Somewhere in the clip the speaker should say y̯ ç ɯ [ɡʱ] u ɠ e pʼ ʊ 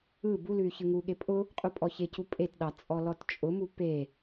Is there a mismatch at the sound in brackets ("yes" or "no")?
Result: yes